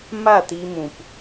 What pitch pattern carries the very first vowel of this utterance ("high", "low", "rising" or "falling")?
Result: falling